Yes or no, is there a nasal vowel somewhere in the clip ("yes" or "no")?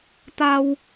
no